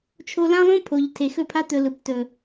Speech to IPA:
t͡ʃʰ o˧ l ã˦ lˠ õ˦ pʰ o˨ ʎ tʰ e˨ x ɵ˦˨ pʰ a˦ t̪ ɵ˧ l ɯ˨ p t ɵ˨

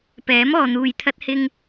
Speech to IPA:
p ɛː˨˥ m ɔː˨ n̪ uː˨ j t̪ʰ ɐ˧ t̚ h ɪ˧ ŋ

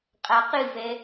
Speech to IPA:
qʼ a q ɨ v ɛ

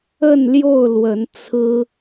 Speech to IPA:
ə˥˨ n l j o˥˨ ʊ̯ l w ə˨˦ n t͡sʰ ɹ̩˦

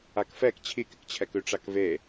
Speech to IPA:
a k f ɛ k t͡ɕʰ i k ɪ k t͡ɕʰ ɛ k ʉ ʈ͡ʂ a k v e

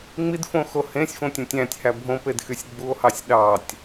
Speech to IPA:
ŋ͡m i d f õ x o h ẽ sʲ f õ tʲ õ tʲ æ̃ tʲ h æ bʱ õ p e d x y sʲ ɡ͡b u o̯ h ɑ sʲ ɗ ɑ tʲ

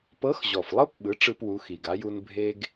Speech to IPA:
p ɤ˧˥ x ʑ ɔ˨˩ f lˠ ɤ˥ p ɓ ɯ˩˥ ʈ͡ʂ ɯ˥ p w u˧˥ x i˨˩ ɡ a˧˥ j u˥ n bʱ e˥ ɡ

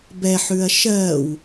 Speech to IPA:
b ɛ ħ ʉ ɐ̯ ʃ ɜː w

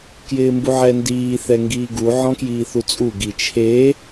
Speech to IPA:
k j ɪː m b u ʕ ɛ n d iː θ ɛ ŋ ɡ iː ɡ u ʕ ɔ̃ k j iː θ u t͡sʼ u ɡ i t͡ʃʰ e

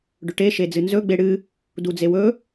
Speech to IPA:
ɖ ɵ ʈ e ʃ e d͡z ɨ n z ɵ ɡ͡b e ɽ ɨ | d u d͡z e w ɵ

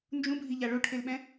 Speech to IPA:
n d͡ʒ ũ bʱ i ʎ a ɭ o ʈʰ e l ɓ ɛ̃

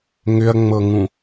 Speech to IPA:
ŋ ʏ ɐ̯ ŋ͡m ɤ ŋ ũ

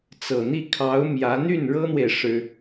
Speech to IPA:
t͡s ɤ˨˩ n̪ i˥˩ kʰ ɑ˧˥ ʊ̯ m j ä˧˥ n̪ y˥˩ n ɻ ɤ˥ n̪ w e˨ ɪ̯ ʂ ɻ̩˥

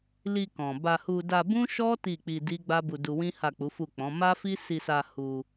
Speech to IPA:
l i˧ k ɔ̃˨ b a˧ h u˧ d a˧ b ũ˦ ʃ ɔ˦ t i˦˨ k͡p i˧ d i˦ ɡ͡b a˦ b u˧ d u˧ w ĩ˦ h a˦˨ k͡p u˨˦ f u˦˨ k͡p ɔ̃˨˦ m a˦ f i˦ s i˧ s a˧ h u˧

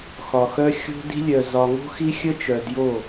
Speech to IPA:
x ɒ˨ x œ˦ xʲ o̤˦ d i̤˦ lʲ œ˨ z ɒ˨ ŋ o̤˦ x i˦ xʲ ə˦ t͡ʃ œ˨ d j o˦˨

